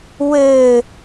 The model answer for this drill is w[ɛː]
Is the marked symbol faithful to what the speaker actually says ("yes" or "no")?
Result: no